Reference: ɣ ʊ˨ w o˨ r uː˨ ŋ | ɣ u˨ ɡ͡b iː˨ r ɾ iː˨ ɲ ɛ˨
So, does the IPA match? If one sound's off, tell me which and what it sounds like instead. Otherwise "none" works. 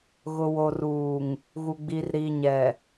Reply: none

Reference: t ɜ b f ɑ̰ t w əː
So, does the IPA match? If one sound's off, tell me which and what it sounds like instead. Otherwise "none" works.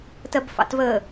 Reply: w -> v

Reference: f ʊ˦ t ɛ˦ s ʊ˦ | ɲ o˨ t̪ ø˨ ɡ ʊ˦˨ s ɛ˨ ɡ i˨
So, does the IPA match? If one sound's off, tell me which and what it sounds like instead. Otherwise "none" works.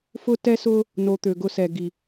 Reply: ɲ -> n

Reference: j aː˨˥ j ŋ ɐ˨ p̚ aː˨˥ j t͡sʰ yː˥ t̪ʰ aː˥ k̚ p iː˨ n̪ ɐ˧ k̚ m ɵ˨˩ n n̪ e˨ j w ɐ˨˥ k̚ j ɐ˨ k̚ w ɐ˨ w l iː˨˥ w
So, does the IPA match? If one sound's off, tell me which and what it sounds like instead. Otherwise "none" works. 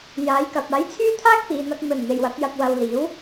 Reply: ŋ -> k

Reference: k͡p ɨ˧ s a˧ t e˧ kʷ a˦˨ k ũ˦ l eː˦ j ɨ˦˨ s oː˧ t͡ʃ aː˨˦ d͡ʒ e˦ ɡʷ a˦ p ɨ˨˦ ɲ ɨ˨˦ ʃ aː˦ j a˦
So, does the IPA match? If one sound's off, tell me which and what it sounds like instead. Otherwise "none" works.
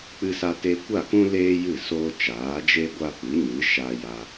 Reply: none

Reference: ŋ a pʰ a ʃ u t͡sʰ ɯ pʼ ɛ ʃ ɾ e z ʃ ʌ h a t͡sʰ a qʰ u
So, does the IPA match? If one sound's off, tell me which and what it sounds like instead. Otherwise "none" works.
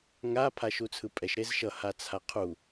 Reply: none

